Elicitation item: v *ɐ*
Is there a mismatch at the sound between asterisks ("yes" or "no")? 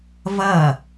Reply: no